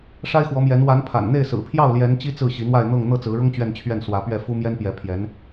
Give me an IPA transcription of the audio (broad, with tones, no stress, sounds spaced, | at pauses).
ʂ a˥ ɪ̯ x w ɔ˧˥ m j ɛ˧˥ n w a˧˥ n pʰ a̰˨˩ n n̪ e˥˩ ɪ̯ s ɹ̩˨˩ pʰ j ɑ˥˩ ʊ̯ l j ɛ˧˥ n t͡ɕ i˥ t͡s ɹ̩˥˩ ɕ i˧˥ n̪ w a˥˧ ɪ̯ n̪ ɤ˥˧ ŋ n̪ ɤ˥˩ t͡s ɹ̩˧˥ ɻ ʊ˥ ŋ t͡ɕ ɥ ɛ˥˧ n t͡ɕʰ ɥ ɛ˥˩ n s w ä˧˥ p ɥ ɛ˥˩ f u˥ m j ɛ˥ n p j ɛ˧˥ pʰ j ɛ˧˥ n